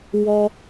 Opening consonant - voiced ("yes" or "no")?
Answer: yes